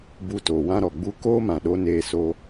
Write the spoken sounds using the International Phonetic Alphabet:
b u˧ t o˨ w ã˦ ɾ ɔ˨ ɡ͡b u˦ k oː˦ m ã˨ ɗ o˧ n eː˧ s oː˧

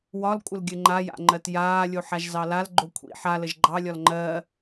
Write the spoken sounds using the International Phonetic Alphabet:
w ɒ l kʷʼ ə l ɡʲ ɘ ŋ͡ǃ a j a̰ ŋ͡ǃ ɜ t j aː lʲ o ħ a ʒ z ɑ l a l ɡ͡ǃ o kʷʰ ḭ ħ a l ə ʒ ɡ͡ǃ ɑ lʲ ɒ l ŋ͡ǃ ɜ

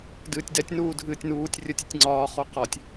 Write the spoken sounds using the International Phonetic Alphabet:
d ɨː tʲ d ɛ tʲ n uː dʱ ɨː tʲ n uː tʲ rʲ ə tʲ ə tʲ ŋ͡ǀ ɒː χ o q ɒ tʲ

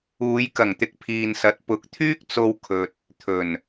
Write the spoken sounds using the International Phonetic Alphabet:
uː˨˧ j k ɐ˨˩ ŋ t̪ ɪ˨ k̚ pʰ iː˨ n s ɐ˨˥ t̚ p ʊ˨˥ k̚ t̪ʰ yː˥ k̚ t͡s o˧ w kʰ ɵ˨ t̚ | t̪ʰ ɵ˨˩ n

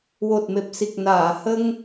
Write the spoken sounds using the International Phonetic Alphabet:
w o˨˩ t̚ m e˨˩ p̚ s i˨˩ k̚ n aː˨˩˨ h ə˧ ŋ

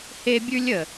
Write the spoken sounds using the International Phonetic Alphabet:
h e˦ bʲ ʉ˦ lʲ ə˨

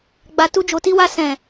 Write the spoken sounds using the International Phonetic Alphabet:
ɡ͡b a˨ t u˧ d͡ʒ o˨ t i˧ w a˧ s ɛ̃˨

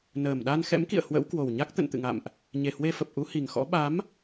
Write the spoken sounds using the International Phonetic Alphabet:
n əː˨˩ m ɗ a˧ n x ɛ̰˧˥ m k ḭ˧˨ ə̯ h w ə̰˧˥ w k w o˨˩ w ɲ a˦˥ k̚ t̪ ə̰˧˨ n t̪ ɨ̰˧˨ ŋ a̰˧˨ m ʔ | ɲ e˨˩ h w e˧ f ə˨˩ p̚ ʔ u˨˦ h i˨˩ ŋ x ɔ̰˧˥ ɓ a˨˦ m

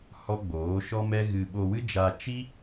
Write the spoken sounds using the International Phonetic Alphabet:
h ɔ˦ ɡ͡b oː˨˦ ʃ ɔ˦ m ɛ˦ ɣ ɨ˧ ɓ o˧ w ɨ˦ d͡ʒ a˧ t͡ʃ i˦

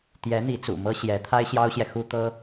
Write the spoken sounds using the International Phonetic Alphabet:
t̪ j ɛ˧˥ n̪ i˧˥ t͡s ṵ˨˩ m ɤ˥ ɕ j ɛ˧˥ t̪ʰ a˥ ɪ̯ ɕ j ɑ˥ ʊ̯ ɕ j ɛ˨ x u˥ t̪ ɤ˥

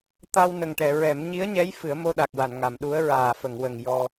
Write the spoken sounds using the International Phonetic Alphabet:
t̪ a˧ w n ə˨˩ ŋ ʈ ɛ˨˩˨ ɹ ɛ˨˩˦ m ɲ i˧˥ ə̯ ɲ ɛ˧˥ j f ɨ˨˩˦ ə̯ m o˧ ɗ a˨˩ k̚ w a˨˩˨ n ŋ a˨˩˨ m ɗ u˧˥ ə̯ ɹ aː˨˩ f ə˨˩˨ ŋ w ə˨˩ ŋ j ɔ˧

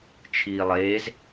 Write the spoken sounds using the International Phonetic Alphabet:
t͡ʃʰ iː lˠ eː z

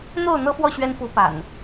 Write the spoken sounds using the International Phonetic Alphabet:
n̪ o˥˨ ʊ̯ n̪ ɤ˦ f w ɔ˥˨ ɕ ɥ ɛ˦ n f u˨˦ p a̰˨˩ n

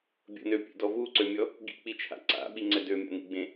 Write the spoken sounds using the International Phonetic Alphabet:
bʲ ə̰ n ø pʲ ḛ d ɔ v u ǀ ø mʲ ɔ | ɡ ḭ k͡p i t͡ʃʰ a̰ ǀ a̰ ɓ i ŋ͡ǀ ɛ d ø mʲ a̰ n ḭ ɡ͡b ẽ

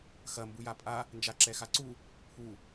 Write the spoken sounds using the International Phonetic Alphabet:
x ɐ m b u j a pʼ a | n d͡ʒ a ǁ ɛ x a ǀ u | pʰ u

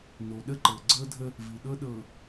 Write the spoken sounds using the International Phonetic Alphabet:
n o˨ ɗ ə˦ ǃ ɤ˨ ɡ͡ǀ ɤ˦ dʱ ə˦ | v i˨ ɗ ɤ˦ ɗ ɤ˨

